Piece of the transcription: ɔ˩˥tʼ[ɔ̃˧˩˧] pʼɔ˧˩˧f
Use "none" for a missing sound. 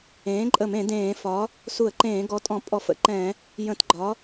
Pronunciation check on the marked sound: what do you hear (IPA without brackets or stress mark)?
ɔ̃˧˩˧